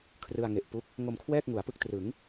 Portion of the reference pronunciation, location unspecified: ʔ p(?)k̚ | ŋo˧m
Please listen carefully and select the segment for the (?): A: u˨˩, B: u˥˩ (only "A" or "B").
B